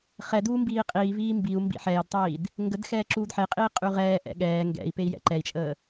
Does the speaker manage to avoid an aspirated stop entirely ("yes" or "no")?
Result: yes